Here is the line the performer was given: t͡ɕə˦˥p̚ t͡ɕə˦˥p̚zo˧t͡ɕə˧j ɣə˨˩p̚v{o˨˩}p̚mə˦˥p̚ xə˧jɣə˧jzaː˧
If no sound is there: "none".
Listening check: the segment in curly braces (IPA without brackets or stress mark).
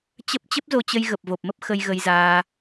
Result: o˨˩